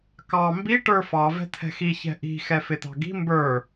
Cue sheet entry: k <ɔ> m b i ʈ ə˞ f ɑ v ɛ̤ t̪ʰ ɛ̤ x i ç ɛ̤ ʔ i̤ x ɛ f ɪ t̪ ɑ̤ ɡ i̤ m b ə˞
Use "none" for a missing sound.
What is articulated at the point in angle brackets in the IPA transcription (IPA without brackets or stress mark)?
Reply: ɑ